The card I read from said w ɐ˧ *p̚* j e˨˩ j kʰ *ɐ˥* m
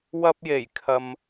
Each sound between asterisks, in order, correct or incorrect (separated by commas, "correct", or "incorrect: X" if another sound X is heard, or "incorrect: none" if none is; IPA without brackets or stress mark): correct, incorrect: ɐ˨